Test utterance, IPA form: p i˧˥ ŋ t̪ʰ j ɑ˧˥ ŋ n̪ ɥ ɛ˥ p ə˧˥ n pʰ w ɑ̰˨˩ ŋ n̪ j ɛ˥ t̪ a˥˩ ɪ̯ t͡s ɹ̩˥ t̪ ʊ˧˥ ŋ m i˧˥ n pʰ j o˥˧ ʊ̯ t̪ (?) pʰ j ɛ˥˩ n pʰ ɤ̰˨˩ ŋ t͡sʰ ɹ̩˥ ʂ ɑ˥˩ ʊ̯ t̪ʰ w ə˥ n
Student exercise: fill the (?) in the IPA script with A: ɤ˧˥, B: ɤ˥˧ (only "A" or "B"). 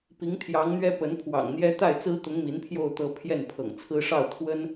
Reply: B